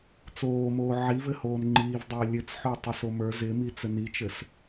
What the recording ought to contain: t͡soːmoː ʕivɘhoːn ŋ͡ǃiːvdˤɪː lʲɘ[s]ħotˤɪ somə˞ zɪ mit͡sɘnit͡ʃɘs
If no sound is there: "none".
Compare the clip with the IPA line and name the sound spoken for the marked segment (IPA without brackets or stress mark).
t͡s